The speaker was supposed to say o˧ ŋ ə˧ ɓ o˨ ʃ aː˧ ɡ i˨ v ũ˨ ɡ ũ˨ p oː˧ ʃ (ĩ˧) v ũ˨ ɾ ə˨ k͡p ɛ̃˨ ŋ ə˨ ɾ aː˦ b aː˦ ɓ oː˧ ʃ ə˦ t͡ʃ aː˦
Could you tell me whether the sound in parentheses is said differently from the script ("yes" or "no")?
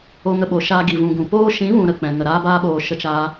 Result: yes